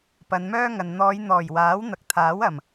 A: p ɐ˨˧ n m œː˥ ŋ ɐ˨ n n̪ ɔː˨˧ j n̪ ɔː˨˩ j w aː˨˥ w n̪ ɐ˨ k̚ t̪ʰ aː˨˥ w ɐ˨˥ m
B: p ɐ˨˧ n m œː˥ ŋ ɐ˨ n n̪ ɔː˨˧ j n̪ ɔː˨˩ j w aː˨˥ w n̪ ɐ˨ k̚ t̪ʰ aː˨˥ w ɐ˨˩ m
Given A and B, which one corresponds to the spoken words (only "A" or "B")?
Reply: B